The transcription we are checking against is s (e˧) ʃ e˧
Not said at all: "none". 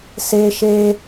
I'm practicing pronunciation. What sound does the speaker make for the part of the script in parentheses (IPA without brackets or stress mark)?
e˧